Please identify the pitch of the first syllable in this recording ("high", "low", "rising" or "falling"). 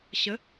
rising